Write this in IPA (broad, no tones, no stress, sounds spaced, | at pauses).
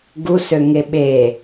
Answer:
ɡ u s ø ŋ e ɓ e